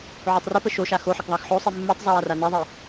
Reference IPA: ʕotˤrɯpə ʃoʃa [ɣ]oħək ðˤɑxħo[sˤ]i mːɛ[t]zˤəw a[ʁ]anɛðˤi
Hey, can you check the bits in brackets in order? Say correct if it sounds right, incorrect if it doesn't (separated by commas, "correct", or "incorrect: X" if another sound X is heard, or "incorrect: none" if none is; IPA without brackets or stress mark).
incorrect: x, correct, incorrect: tˤ, incorrect: r